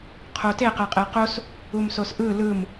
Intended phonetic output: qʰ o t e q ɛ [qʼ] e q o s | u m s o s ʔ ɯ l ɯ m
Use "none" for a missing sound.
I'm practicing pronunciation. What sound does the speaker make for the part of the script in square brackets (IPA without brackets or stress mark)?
qʼ